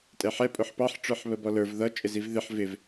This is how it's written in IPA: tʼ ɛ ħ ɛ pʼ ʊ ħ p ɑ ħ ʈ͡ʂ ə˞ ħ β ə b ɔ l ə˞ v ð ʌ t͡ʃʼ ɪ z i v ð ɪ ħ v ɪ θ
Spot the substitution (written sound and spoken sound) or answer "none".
θ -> v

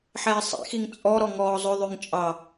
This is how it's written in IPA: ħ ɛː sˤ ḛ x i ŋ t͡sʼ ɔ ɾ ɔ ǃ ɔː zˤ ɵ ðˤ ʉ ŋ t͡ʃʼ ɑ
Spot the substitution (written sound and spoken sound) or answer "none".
ǃ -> ŋ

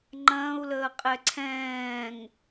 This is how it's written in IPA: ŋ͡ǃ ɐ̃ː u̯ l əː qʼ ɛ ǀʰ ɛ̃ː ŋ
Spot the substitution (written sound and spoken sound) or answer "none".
none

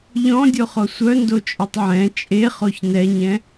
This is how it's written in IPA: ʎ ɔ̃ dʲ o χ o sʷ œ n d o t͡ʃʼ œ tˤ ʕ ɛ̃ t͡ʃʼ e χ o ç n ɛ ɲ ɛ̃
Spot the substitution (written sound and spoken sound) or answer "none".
none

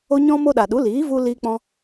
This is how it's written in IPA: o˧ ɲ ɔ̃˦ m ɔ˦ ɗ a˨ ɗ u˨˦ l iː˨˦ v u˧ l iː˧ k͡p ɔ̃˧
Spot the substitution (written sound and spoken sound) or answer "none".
ɔ˦ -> o˦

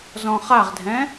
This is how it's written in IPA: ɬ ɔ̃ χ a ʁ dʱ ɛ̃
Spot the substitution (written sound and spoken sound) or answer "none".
ɬ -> z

